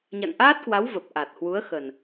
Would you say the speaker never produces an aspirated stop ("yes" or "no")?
yes